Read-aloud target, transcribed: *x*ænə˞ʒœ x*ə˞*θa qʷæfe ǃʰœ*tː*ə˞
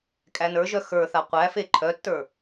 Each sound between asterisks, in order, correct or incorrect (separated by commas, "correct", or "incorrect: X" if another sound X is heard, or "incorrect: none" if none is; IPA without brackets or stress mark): incorrect: kʼ, correct, correct